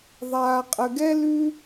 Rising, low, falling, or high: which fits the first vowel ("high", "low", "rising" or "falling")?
low